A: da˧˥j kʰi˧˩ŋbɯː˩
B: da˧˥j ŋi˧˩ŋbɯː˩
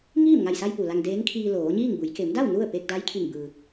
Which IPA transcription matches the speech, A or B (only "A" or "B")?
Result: A